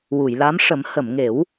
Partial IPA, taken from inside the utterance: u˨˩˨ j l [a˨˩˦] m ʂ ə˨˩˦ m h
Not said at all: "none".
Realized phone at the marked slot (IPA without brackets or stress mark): a˧˥